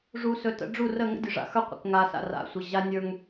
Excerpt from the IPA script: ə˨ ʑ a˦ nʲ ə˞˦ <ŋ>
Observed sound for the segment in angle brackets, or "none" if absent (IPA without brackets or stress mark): ŋ